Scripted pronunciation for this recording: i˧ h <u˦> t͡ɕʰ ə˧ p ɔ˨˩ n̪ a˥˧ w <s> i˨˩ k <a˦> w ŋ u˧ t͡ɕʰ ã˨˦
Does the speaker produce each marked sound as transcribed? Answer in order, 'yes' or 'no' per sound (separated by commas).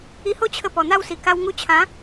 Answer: no, yes, no